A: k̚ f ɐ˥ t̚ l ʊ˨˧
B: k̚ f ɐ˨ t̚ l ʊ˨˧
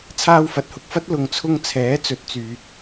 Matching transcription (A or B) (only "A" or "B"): A